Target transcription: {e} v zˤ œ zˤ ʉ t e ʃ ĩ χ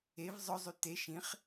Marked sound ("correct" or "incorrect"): correct